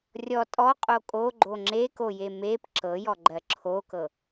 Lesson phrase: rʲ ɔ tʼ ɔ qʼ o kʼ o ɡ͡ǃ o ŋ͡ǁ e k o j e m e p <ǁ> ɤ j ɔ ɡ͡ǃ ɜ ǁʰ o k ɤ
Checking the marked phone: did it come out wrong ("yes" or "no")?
no